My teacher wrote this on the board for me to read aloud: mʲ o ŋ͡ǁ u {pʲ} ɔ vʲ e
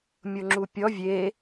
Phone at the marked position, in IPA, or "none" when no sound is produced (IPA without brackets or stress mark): pʲ